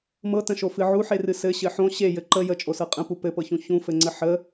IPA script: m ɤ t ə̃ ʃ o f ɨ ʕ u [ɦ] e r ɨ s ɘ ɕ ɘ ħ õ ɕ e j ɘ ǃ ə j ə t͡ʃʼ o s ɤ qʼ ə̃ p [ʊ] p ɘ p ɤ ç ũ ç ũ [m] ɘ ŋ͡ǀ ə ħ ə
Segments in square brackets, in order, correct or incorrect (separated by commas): incorrect, incorrect, incorrect